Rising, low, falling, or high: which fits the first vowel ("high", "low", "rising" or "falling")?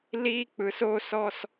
high